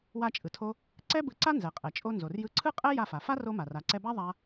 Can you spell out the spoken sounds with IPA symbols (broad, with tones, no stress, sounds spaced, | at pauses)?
w a˧ t͡ʃʼ ɯ˩ tʰ o˧ | ǀ ɛ˥ b ɯ˧ ǀ a˥ n z ɛ˩ qʼ ɛ˩ t͡ʃʼ o˧ n z o˩ r j ɯ˧ ǀʰ ɯ˥ qʼ ɛ˥ j a˧ f a˩ f a˥ r o˧ m a˩ r a˩ ǀ ɛ˧ b a˥ ðˤ a˧